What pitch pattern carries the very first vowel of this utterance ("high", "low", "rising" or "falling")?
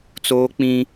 high